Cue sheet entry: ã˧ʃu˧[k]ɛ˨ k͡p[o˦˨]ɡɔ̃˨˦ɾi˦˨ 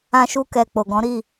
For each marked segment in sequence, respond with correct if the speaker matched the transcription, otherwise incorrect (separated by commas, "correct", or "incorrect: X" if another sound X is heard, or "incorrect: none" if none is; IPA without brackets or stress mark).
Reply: correct, incorrect: o˨